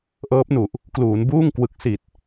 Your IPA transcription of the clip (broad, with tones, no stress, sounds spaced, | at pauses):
ʔ ɤː˦˥ p̚ n u˨˩ ʔ | k l uː˩˦ n b uː˥˩ ŋ k w ɯ˨˩ k̚ s i˨˩ t̚